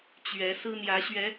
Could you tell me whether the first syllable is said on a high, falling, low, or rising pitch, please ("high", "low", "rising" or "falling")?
rising